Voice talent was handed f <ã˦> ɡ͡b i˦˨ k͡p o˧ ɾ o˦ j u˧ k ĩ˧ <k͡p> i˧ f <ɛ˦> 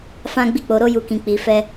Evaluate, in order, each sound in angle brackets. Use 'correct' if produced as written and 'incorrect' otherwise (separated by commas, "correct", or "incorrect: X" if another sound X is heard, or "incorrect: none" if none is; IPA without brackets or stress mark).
correct, correct, correct